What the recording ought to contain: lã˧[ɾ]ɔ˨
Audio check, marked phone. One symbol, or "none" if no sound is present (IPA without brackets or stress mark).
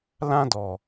d